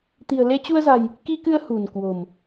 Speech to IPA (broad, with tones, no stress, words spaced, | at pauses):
t̪i̤˨˩ə̯le˧t͡ɕu˧ə̯za̤˨˩j | ki˧kɨ˧ə̯ hṳ˨˩nkwo̤˨˩m